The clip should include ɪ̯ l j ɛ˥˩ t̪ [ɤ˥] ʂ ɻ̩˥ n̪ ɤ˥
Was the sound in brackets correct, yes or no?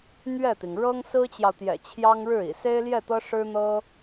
yes